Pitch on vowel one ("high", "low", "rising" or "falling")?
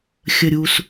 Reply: low